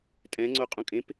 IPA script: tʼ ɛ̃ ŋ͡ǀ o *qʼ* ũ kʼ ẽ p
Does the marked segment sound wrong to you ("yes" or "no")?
no